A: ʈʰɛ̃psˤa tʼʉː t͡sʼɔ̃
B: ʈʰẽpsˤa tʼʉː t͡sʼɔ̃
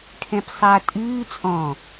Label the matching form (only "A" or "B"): A